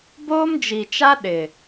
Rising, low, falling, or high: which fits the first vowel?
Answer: high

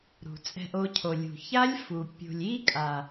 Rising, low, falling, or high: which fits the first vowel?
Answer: low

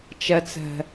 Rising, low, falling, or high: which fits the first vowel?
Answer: low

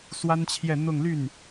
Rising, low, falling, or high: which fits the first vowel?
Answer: high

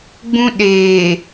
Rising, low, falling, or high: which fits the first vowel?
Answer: high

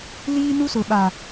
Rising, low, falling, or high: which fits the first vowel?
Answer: high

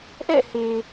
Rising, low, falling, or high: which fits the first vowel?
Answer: falling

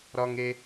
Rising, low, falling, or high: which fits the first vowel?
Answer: high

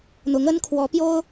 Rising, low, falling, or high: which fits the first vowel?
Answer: rising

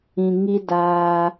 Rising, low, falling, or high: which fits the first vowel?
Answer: low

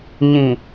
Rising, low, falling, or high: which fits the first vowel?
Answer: low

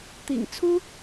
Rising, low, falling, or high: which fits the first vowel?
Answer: low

